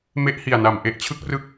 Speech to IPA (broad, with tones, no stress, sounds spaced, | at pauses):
m e˦˥ ʔ h i˨˩ a̯ n a˨˩ m ʔ e˦˥ ʔ t͡ɕʰ ɯ˦˥ k̚ r ɯ˦˥ k̚